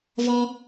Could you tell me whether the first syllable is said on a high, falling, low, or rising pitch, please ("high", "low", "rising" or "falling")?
high